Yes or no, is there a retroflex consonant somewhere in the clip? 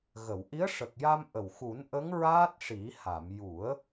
yes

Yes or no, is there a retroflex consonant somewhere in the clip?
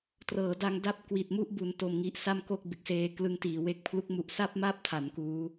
no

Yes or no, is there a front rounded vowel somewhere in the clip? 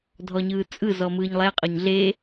no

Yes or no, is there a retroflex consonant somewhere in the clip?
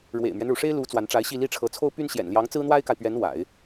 yes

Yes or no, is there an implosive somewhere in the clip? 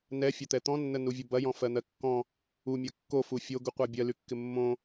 no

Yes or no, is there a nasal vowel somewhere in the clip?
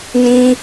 yes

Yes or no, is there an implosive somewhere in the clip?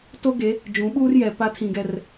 yes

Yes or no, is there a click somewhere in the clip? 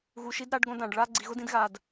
yes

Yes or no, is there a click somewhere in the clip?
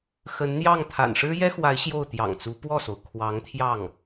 no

